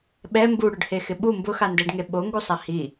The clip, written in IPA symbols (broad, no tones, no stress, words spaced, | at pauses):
ɓɛ mbuɽʊɖhexɪ ɓu mbʊxandɛɖŋe ɓoŋɡusˤa hi